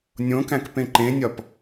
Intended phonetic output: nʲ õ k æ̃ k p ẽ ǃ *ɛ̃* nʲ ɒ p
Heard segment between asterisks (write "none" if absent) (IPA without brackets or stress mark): ẽ